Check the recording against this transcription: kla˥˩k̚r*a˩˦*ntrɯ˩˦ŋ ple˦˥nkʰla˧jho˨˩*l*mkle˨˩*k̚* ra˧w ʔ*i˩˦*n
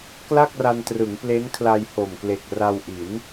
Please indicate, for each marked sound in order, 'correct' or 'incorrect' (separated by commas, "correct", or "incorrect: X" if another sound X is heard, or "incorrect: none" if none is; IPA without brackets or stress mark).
incorrect: a˧, incorrect: none, correct, correct